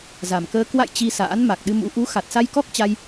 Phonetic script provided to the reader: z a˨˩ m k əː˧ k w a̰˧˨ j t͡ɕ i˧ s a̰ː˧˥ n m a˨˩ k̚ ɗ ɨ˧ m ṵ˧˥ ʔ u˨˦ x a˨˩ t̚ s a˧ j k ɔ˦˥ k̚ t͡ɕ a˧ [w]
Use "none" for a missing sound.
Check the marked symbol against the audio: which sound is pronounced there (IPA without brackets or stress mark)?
j